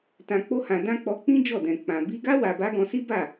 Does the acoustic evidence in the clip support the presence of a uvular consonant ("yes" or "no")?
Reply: no